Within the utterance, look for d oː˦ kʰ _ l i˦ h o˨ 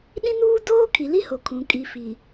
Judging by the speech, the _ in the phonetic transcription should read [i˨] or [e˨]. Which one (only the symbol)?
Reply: i˨